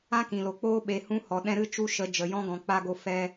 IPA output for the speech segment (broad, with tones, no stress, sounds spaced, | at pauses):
ã˦ k ĩ˨ l o˨ k͡p oː˦ ɓ e˨ h ũ˦ h ɔ˨ ɗ ɛ̃˦ ɾ ɨ˦ t͡ʃ u˦ ʃ ə˨˦ d͡ʒ ə˨ j ɔ̃˦ ɡ ɔ̃˨ k͡p a˧ ɡ o˧ f ɛ˧